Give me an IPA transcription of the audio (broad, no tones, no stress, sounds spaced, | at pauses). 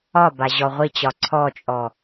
ɒ b a ʑ ɔ ʁʷ i t͡ɕ ɒ ǀʰ ɔ t͡ʃʼ ɔ